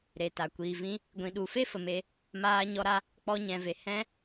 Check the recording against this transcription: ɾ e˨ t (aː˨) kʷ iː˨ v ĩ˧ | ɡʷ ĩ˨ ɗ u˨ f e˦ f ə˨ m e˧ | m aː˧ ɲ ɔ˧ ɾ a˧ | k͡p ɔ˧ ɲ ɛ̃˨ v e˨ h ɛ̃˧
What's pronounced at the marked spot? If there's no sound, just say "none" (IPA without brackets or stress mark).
a˨